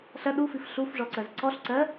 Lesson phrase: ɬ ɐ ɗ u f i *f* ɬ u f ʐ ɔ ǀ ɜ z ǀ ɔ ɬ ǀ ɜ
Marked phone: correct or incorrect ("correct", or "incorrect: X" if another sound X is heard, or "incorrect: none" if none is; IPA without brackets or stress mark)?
correct